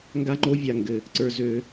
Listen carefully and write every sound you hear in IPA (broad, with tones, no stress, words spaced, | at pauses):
ŋɡa˦ŋ͡ǃo˦vʲa˨ŋɡɘ˨ | ǀə˞˧zø˧